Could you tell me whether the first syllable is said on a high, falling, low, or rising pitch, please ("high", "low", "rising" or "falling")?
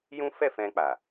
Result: high